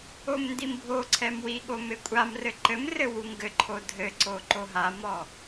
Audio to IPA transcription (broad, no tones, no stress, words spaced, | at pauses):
omndimbʱoǀʰɛm wiɠom ekʷʼamrɘ ǃɘmrɘ wuŋɡɘǃʰo dʱɘǀo ǃoɦamɔ